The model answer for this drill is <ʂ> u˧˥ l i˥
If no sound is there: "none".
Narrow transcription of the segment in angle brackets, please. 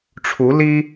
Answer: ʈ͡ʂʰ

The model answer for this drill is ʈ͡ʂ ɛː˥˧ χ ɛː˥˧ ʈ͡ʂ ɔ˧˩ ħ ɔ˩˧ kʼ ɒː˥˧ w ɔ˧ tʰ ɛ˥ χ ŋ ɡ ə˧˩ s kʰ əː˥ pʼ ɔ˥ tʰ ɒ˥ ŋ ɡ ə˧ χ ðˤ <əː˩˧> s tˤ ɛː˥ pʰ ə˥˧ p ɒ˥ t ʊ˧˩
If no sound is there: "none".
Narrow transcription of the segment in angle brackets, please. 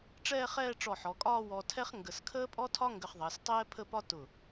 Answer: əː˩˧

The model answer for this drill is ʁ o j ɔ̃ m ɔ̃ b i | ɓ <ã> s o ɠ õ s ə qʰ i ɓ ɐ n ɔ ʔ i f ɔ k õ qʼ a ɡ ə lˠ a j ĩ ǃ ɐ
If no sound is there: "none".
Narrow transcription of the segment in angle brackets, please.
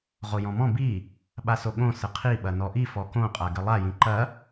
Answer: a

